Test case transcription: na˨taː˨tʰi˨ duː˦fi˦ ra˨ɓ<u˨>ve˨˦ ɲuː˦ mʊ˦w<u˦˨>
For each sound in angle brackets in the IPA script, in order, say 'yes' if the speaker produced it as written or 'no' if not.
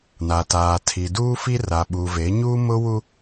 yes, no

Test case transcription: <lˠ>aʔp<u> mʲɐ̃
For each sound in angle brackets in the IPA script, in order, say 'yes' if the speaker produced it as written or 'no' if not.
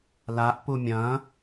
no, yes

